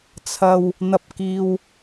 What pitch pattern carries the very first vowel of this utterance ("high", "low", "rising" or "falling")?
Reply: low